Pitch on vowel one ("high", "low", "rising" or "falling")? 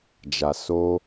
low